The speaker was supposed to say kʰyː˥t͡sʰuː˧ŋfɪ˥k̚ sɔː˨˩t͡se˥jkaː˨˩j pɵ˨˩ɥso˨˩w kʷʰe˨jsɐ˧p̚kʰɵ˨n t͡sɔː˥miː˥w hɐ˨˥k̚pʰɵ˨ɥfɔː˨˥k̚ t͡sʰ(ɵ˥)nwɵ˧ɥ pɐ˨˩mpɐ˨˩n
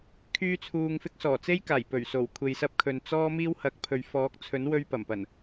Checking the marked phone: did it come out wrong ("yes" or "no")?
yes